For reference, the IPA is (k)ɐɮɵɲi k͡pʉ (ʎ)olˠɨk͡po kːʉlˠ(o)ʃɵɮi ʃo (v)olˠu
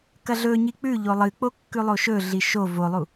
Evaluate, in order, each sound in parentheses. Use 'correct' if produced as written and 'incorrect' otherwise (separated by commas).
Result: correct, correct, correct, correct